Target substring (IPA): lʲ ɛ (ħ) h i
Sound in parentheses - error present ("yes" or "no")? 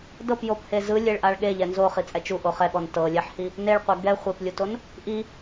no